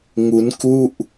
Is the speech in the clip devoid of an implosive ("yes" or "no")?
yes